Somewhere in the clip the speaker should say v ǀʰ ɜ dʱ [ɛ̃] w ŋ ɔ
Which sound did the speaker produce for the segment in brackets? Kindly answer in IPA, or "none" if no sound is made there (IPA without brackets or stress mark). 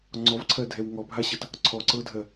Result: ɛ